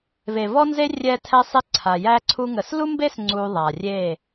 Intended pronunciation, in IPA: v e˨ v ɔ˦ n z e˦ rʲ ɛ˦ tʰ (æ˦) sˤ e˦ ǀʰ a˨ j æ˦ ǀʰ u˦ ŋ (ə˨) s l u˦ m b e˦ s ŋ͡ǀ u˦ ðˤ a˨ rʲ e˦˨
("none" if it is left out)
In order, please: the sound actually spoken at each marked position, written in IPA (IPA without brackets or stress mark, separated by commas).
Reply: ɛ˦, ə˨